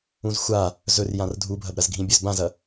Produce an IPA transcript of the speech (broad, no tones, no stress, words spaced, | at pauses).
ũzxʷa | zɵrjãr dʱubʱɐb ɾɐzɡʱĩbʲɵz bãzɐ